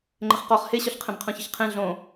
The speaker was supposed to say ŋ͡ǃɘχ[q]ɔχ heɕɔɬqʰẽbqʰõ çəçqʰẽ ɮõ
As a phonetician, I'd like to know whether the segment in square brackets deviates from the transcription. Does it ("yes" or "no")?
no